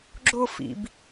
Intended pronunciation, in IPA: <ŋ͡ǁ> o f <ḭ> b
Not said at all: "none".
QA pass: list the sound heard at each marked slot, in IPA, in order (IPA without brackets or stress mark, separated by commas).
ɡ͡ǁ, ḭ